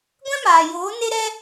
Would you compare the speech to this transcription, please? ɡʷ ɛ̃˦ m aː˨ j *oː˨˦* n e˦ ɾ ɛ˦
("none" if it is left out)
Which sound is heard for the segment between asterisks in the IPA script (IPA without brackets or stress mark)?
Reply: oː˨˦